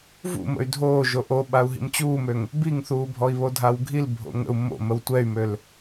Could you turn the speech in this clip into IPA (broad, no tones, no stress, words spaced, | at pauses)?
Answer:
vṵmə̰y̯ dʱoː ʒoʔoɓau̯ ɦḭmt͡ɕuːmøŋ | biŋθuː bʱɔi̯βodʱawɡʱil bʱo̰ŋə̰u̯ mo̰ məwtʷɛy̯møl